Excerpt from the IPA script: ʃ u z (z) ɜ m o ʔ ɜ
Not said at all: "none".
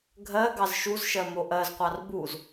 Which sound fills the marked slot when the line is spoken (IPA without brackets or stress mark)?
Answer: ʃ